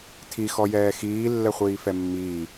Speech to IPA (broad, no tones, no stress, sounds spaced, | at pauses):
tʰ i x ɔ j ɛː x iː lː ɛ χʷ iː f ɛ mː iː